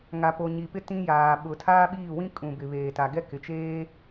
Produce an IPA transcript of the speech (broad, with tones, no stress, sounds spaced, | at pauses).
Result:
ŋ a˨ p o˨ ɲ i˨ p ɪ˦ t ĩ˦ j aː˨ ɓ ʊ˨ tʰ aː˦ ɓ iː˦˨ w ĩ˦ kʼ ũ˨ b ɪ˨ β eː˨ t a˨ ɡ ɛ˦ k ɪ˨ t͡ʃ eː˦